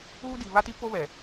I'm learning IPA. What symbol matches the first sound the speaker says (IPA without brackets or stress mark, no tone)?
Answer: uː